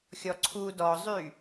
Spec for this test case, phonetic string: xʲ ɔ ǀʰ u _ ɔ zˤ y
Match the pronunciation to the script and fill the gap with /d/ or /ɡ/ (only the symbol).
d